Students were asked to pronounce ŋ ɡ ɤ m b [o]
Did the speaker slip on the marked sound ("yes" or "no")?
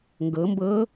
yes